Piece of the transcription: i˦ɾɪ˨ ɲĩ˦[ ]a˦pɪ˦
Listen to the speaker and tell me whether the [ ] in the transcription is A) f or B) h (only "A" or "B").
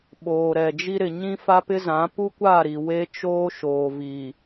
A